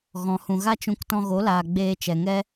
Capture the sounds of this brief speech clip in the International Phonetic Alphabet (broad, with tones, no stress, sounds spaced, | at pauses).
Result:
ɣ ɔ̃˨ h ũ˨ ɣ a˦ t͡ʃ ũ˧ k t ɔ̃˧ ɣ o˨˦ l aː˨ ɡ͡b eː˧ t͡ʃ ɛ˨ ŋ ɛ˦